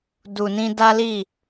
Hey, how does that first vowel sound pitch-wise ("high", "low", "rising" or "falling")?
low